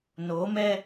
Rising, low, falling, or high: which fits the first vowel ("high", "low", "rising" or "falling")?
rising